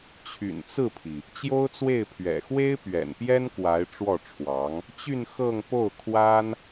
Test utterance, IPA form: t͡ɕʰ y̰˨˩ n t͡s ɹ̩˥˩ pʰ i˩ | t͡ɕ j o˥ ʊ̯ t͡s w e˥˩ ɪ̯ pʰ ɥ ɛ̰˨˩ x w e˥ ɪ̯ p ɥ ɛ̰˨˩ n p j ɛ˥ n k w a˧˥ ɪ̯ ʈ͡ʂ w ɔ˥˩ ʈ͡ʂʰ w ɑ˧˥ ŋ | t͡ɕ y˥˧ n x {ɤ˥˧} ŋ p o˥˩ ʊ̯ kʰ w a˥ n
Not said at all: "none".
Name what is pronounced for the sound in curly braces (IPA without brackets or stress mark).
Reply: ɤ˥˧